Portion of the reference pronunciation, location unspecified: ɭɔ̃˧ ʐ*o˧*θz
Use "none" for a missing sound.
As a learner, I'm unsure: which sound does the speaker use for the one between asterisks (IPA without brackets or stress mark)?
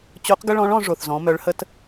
o˩